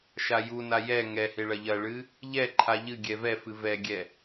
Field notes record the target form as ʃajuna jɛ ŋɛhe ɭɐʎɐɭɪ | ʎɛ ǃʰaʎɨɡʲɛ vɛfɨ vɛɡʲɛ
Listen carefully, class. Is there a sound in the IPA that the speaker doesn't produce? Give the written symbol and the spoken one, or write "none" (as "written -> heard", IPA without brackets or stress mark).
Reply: ɪ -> ɨ